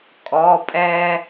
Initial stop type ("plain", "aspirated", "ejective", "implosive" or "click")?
ejective